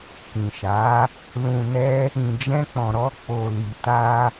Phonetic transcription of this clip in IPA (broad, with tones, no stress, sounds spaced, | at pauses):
k ĩ˨ ʃ a˨˦ | l ũ˨ n ɛ˧ | ĩ˨ d͡ʒ ɛ̃˧ k͡p ɔ̃˨ ɾ ɔ˧ k͡p o˨ l i˨ t a˧